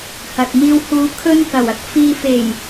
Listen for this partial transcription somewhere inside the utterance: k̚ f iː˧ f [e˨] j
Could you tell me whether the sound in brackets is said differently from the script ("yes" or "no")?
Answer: yes